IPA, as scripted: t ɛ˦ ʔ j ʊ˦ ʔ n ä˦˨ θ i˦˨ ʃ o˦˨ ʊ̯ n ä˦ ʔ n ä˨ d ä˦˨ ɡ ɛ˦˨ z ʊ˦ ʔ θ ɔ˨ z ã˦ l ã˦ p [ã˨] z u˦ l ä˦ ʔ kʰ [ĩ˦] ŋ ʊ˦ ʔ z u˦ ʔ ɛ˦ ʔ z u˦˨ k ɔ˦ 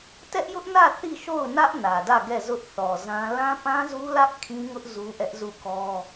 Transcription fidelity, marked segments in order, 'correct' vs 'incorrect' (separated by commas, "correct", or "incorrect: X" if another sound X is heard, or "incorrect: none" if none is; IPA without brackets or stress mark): incorrect: ã˦, correct